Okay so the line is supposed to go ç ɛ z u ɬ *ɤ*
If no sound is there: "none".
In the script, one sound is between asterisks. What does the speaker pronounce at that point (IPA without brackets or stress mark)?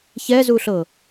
ɤ